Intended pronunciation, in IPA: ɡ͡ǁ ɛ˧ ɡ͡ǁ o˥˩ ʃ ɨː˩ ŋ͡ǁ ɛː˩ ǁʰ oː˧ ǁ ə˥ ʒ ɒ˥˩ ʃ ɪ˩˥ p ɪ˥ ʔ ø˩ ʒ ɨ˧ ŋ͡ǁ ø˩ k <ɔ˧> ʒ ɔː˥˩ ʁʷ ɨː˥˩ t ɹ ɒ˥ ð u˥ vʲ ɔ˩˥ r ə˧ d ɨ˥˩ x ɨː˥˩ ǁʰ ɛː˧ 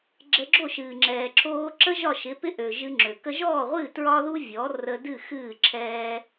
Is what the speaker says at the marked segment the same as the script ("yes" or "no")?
no